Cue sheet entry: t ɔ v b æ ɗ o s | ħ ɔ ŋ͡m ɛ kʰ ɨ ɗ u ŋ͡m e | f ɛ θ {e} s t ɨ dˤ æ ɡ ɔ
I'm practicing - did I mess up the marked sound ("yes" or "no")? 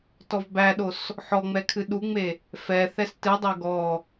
yes